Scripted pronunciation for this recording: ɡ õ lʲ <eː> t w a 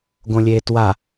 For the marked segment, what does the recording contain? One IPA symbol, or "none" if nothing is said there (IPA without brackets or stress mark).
eː